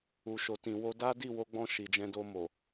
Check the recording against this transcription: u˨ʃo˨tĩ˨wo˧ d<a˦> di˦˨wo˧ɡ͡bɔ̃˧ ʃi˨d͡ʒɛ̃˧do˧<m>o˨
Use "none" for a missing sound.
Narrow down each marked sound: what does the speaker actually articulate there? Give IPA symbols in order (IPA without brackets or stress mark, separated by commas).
a˦, m